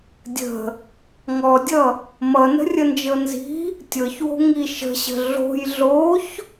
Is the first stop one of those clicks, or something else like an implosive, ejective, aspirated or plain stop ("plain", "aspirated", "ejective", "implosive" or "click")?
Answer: plain